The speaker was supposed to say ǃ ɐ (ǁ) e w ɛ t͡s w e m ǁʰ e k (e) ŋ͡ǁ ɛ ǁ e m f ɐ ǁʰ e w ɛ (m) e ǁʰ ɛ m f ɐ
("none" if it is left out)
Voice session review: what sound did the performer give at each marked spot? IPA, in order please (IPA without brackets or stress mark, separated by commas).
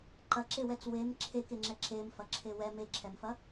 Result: ǁ, e, m